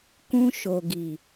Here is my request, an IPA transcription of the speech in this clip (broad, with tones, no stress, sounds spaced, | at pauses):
k ũ˧ ʃ o˨ ɡ i˨